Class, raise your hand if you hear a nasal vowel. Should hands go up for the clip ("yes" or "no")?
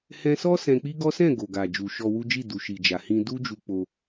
yes